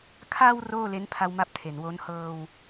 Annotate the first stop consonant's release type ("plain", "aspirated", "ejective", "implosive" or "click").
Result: aspirated